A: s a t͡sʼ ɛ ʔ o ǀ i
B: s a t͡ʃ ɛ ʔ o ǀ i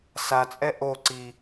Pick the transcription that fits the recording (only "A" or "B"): A